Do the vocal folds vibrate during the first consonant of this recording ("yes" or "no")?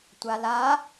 no